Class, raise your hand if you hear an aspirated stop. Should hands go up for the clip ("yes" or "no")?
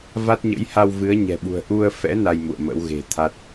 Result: yes